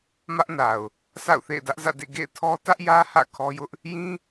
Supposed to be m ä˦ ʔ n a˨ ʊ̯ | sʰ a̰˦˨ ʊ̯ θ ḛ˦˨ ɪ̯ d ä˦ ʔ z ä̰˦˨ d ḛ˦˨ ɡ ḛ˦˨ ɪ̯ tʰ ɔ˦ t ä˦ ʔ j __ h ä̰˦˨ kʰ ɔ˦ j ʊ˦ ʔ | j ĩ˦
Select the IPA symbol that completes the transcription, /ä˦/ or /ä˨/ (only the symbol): ä˦